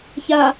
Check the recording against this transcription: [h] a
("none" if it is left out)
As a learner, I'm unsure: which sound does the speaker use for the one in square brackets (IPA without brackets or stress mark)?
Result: ç